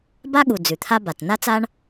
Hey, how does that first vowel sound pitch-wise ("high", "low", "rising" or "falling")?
high